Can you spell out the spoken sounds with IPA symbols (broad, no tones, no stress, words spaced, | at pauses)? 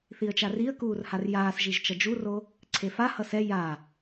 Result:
θiə̯t͡ʃariə̯ kuːrharjaːs ʒiʒt͡ʃʌd͡ʒuro | ǀʰefa hʌsɛ ja